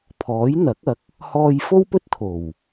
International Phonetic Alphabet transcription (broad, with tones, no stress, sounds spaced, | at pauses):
pʰ ɔː˨˥ j n̪ ɐ˨˥ k̚ ɐ˨˥ k̚ | h ɔː˧ j f o˥ w p ɵ˥ t̚ t̪ʰ o˨˩ w